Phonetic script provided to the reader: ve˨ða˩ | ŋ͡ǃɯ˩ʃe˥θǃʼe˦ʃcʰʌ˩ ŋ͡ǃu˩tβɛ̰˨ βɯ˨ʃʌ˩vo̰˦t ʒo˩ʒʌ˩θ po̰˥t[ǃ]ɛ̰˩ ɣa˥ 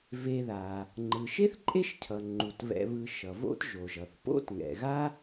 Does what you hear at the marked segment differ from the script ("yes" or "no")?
yes